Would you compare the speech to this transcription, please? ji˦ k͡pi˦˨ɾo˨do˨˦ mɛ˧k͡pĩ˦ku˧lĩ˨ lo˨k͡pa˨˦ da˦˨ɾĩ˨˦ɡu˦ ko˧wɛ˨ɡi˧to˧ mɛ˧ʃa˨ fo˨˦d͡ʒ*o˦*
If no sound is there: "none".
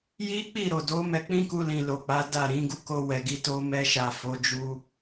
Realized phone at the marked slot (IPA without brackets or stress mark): u˦